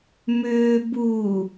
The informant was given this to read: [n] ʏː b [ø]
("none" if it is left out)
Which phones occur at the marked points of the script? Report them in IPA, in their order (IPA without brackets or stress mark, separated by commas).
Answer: m, u